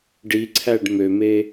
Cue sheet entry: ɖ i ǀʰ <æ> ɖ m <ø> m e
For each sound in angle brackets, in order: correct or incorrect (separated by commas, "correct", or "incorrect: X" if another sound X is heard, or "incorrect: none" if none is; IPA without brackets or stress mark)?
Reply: correct, correct